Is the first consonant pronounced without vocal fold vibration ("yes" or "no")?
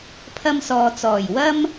yes